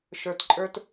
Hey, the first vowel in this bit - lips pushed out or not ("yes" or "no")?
no